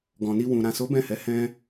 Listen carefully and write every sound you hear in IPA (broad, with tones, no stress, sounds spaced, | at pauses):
ɡ ɔ̃˨ n i˧ w ũ˨ ɾ ã˨ s o˨˦ b ɛ̃˦˨ h ɛ˨˦ h ɛ̃˦